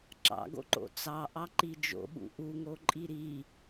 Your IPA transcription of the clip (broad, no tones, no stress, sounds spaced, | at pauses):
ǁ ɑ̰ ɡ o̰ ǃ o̰ t͡s ɑ ʔ ɑ ǃ i d͡ʒ o̰ ɓ ṵ ʔ u ŋ o ǃʼ i ɾ i